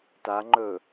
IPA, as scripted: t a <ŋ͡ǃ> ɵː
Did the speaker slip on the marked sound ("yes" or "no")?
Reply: no